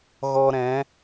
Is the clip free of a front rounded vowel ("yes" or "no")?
yes